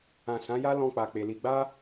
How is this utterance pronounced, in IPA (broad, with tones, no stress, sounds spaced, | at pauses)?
ã˨ s ã˨˦ j a˦ l ɔ̃˧ k͡p a˨ k͡p e˨ l i˧ ɡ͡b a˦